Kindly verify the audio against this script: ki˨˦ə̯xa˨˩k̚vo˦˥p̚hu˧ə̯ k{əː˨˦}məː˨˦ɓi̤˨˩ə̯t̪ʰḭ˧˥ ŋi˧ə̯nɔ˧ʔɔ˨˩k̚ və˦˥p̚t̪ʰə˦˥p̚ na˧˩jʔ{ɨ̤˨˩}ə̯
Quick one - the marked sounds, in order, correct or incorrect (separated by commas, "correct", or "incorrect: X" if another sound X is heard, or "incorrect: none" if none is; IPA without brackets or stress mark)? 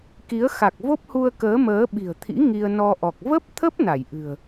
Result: correct, correct